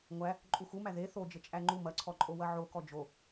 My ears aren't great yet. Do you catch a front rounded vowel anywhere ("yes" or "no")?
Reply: no